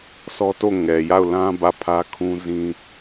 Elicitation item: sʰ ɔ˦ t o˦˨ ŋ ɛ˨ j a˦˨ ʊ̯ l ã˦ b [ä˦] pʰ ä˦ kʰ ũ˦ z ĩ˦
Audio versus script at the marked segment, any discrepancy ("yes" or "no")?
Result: yes